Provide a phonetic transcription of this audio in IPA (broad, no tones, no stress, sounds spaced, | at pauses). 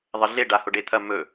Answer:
ðˤ ɐ ɮ e ɖ a h o ɖ e t̪ʰ ɐ m ɵ